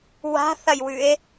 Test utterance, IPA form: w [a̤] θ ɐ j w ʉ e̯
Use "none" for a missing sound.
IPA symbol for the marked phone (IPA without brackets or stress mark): a̤